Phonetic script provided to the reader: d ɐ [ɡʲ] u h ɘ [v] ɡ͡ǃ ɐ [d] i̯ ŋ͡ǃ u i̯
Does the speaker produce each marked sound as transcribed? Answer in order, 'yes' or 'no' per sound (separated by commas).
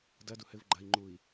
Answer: no, yes, no